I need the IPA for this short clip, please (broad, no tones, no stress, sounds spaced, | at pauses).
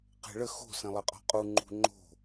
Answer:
q e̤ ɭ ə x o̤ s ẽ lˠ ə qʼ ɔ̤ qʼ u ŋ͡ǃ ṳ ŋ͡ǃ o̤